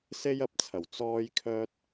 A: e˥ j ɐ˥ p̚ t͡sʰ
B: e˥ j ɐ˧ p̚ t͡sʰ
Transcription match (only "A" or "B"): B